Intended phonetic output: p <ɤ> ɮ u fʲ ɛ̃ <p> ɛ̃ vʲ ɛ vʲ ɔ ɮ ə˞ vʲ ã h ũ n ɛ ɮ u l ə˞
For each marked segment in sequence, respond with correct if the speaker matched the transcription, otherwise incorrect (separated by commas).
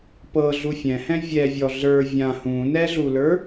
correct, incorrect